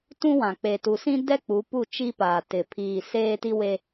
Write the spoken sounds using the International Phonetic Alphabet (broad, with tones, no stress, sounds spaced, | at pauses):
t ũ˦ w ã˨ k͡p e˨ t u˨ s ĩ˦ d ɛ˦ k͡p u˨˦ p u˦˨ t͡ʃ i˦ p aː˨ t ɪ˨ pʰ iː˨ s eː˦ t i˦ w e˦